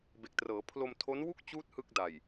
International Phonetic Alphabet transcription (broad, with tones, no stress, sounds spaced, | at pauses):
b e˨˩ k̚ t r ɤː˩˦ pʰ l o˧ m tʰ o˦˥ n w u˥˩ k̚ t͡ɕ uː˦˥ t̚ h ɯ˥˩ k̚ d a˨˩ j